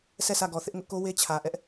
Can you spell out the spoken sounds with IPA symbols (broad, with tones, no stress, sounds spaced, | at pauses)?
sʰ ɛ˦˨ sʰ ä˦˨ ɡ ɔ˨ θ ɪ˦ ʔ ŋ ʊ˦ ʔ k o˦ w e˦ t͡ɕʰ ä˨ ʔ ɛ˦ ʔ